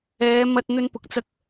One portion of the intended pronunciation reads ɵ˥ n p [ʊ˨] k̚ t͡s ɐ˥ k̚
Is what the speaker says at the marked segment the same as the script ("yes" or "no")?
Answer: yes